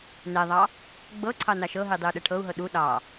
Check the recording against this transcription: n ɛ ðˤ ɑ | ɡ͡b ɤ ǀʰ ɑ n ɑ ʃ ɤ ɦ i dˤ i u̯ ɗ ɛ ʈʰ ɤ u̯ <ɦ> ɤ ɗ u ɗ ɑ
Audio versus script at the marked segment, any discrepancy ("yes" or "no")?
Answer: no